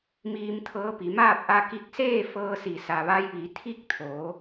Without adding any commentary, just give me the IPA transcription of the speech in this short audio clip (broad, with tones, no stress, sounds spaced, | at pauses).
m iː˧ m t̪ʰ ɤː˧˥ p i˩˧ m aː˥˨ p̚ ʔ a˧ k i˧ k̚ s eː˥˨ f ɤː˧ s i˩ s a˩ ʋ a˧ j ʋ i˩˧ t̪ʰ i˥˨ k̚ t̪ʰ o˩˧